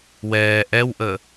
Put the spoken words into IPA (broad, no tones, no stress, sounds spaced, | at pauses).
w ɛː ʔ ɛ w ʔ əː